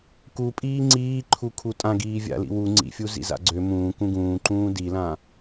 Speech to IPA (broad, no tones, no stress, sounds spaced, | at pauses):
k u pʼ iː ŋ͡ǀ iː ǃʰ u kʰ u tʼ ã ɡ iː vʲ a̰ l ḭ w u ŋ͡ǀ ḭ fʲ u z ḭ z a̰ ɡ͡ǀ ø m ũː k ũ ɡ ũː ǃ ũː d i l ã